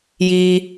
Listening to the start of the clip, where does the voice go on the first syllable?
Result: high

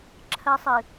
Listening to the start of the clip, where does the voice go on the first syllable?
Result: high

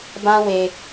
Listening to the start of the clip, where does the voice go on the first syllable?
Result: high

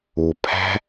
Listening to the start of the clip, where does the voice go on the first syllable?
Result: low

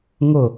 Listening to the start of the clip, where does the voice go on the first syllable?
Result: falling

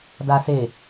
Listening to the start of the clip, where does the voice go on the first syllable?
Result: low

